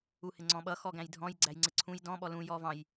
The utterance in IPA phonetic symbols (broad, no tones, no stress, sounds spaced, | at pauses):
u h ɪ ŋ͡ǀ ɔ̃ ɓ ʌ x ɔ ɡ æ̃ j dʱ ɔ̃ j ɡ͡ǀ æ j ŋ͡ǀ ɪ ǀʰ ũ j d ɔ̃ ɓ ɔ l ũ j ɔ v ɑ̃ j